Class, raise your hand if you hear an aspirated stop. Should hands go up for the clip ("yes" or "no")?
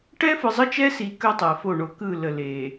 no